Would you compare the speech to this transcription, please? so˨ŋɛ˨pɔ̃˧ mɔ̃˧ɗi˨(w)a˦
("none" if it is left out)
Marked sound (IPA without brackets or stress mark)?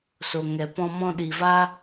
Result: v